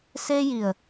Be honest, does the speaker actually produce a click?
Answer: no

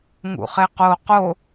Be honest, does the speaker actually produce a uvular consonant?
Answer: yes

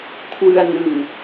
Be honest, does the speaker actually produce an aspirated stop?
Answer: yes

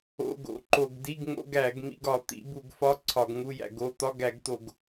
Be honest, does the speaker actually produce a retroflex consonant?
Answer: no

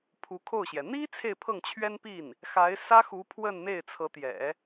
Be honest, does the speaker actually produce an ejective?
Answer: no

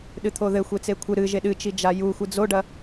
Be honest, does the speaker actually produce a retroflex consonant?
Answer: yes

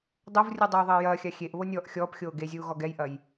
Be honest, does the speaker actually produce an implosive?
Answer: no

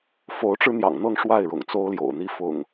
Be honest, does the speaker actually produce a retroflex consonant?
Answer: yes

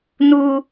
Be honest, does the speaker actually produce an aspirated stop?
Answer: no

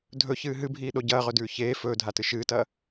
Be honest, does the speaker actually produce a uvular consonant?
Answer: yes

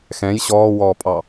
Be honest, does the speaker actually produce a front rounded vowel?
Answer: no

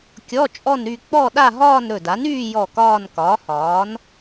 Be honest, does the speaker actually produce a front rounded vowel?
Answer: yes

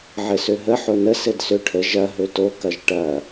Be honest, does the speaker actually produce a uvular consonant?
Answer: no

